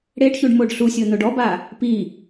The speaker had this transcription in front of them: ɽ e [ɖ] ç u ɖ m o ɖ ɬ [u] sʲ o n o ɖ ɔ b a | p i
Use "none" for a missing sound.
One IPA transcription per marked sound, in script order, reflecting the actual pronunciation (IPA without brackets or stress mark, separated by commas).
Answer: ɖ, u